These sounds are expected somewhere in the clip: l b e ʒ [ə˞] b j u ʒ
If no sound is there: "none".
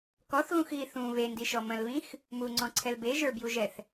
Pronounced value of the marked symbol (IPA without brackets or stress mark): ə˞